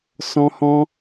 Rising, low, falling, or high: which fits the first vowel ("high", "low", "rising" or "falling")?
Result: high